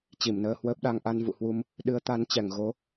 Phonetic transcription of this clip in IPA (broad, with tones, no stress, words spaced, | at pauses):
t͡ɕi˧˩mnəː˧hwəː˦˥p̚ɗa˧ŋ ʔa˧nvṵ˧˨hwu˧m | ɗɨ˨˦ə̯t̪a˨˦n t͡ɕɛ˧˩ŋ ɣo˨˦